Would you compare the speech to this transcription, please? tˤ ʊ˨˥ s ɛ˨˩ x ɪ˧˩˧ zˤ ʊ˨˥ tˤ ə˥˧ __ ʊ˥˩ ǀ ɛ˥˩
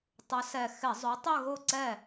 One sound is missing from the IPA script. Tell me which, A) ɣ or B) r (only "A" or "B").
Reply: A